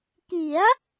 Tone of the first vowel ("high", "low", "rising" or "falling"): rising